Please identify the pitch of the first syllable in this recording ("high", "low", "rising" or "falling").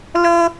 high